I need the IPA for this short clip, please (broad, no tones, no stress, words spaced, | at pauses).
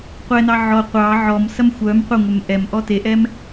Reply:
qʷɛnɑ ʕɔ qʷɑ ʕɔmsɐm xʷœm qʷɐŋʷɛm ʔɛm ʔɔteʔɛm